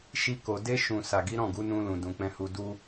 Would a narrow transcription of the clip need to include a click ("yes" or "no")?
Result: no